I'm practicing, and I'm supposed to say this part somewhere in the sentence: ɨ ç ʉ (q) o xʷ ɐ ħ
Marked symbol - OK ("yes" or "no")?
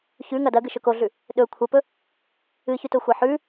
no